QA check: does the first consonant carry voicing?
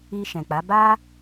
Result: no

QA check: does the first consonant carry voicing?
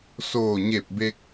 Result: no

